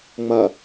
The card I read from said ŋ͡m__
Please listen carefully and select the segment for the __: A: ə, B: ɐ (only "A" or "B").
B